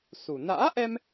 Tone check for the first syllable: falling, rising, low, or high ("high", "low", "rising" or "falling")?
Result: low